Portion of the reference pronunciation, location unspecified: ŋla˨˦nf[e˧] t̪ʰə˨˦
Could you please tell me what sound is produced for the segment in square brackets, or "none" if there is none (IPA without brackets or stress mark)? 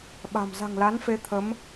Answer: e˨˦